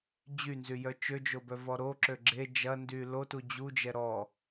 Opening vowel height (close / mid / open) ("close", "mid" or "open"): close